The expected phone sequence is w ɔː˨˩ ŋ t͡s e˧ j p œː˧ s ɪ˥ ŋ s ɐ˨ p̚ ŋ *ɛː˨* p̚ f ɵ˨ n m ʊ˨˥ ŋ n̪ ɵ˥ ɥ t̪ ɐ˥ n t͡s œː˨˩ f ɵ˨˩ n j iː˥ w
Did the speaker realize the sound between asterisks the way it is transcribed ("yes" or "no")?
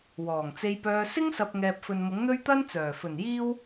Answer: yes